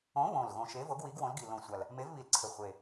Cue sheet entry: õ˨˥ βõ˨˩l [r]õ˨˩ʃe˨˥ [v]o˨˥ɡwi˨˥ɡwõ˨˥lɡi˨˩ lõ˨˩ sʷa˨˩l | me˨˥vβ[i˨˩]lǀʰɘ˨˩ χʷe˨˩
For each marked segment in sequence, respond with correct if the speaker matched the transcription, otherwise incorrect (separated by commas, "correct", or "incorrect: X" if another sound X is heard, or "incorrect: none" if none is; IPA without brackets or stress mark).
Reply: incorrect: ɣ, correct, correct